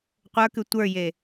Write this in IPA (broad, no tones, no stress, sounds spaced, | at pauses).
qʷ ə˞ k ʉ tʷ ə˞ j e